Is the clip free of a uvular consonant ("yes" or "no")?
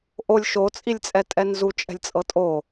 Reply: yes